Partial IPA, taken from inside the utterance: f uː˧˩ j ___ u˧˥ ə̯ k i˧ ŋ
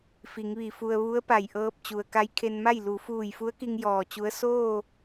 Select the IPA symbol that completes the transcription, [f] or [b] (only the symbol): f